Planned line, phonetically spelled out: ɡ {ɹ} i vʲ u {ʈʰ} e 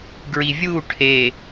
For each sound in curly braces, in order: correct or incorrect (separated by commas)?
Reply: correct, correct